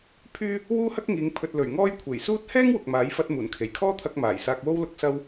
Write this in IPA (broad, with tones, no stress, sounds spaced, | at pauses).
pʰ yː˥ | w uː˥ h ɐ˥ k̚ ŋ iː˨˧ ŋ pʰ ɵ˨ t̚ l ɵ˨˩ ɥ ŋ ɔː˥ j kʷʰ e˨˩ j s uː˥ t̚ h ɛː˥ ŋ w ʊ˨ k̚ m aː˨˥ j f ɐ˧ t̚ m uː˨˩ n kʰ e˨˩ j kʰ ɔː˥ t̪ʰ ɐ˧ k̚ m aː˨˩ j s aː˧ k̚ w o˥ w l ʊ˧ k̚ s ɐ˥ w